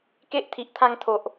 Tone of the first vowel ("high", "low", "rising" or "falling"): high